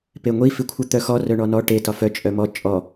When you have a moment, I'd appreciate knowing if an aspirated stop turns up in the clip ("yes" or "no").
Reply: yes